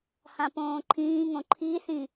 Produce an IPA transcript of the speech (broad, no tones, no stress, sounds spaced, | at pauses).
h ã p õː ǃʰ ĩː ŋ õ ǃʰ i θ ĩ